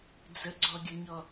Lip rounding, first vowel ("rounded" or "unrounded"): unrounded